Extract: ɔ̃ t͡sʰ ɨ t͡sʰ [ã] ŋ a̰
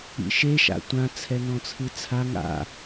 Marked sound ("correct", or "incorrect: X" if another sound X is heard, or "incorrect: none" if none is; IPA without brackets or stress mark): incorrect: a